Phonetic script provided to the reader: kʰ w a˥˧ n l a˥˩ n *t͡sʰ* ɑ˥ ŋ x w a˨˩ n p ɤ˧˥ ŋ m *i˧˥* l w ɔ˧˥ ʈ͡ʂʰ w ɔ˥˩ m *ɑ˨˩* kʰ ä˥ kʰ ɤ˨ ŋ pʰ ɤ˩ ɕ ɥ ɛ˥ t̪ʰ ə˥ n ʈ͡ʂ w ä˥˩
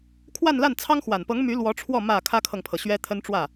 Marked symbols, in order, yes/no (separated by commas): yes, no, no